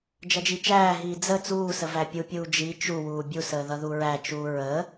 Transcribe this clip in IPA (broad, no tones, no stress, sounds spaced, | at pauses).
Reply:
d͡ʒ ʌ d͡ʒ i t͡ʃ æː ɦ iː d͡z ə t͡s uː s ə v æ pʲ u pʲ uː d͡ʒ i t͡ʃ u w uː bʲ u s əː ð ʌ ð u ɹ æ t͡ʃ uː ɹ ə